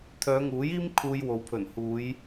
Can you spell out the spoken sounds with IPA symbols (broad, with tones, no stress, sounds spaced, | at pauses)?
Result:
t̪ʰ œː˨˧ ŋ uː˨˥ j iː˥ m kʰ uː˧ j w o˨˧ w pʰ ɵ˨˩ n h uː˨˧ j